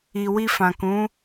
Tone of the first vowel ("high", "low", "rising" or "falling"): low